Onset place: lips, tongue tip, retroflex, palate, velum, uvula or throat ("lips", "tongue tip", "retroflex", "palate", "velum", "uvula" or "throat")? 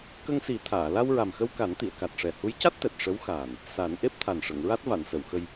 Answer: velum